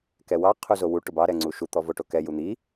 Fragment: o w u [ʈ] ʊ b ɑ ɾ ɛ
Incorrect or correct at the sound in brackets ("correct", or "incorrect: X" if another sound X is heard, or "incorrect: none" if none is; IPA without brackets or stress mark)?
correct